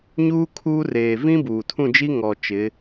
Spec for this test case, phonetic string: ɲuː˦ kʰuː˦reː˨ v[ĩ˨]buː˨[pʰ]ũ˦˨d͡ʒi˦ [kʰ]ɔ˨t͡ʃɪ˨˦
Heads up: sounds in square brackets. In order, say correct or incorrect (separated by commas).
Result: incorrect, incorrect, incorrect